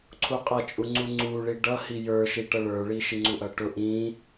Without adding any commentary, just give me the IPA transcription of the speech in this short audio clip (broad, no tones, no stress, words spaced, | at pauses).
ǀʰuqʼʌt͡ʃʼuŋ͡ǀu ŋ͡ǀuɭi ɖʌhi jə˞ʃiʈʌɭ ə˞ɭi ʃiŋ͡ǀuʔʌʈʊ ʔĩ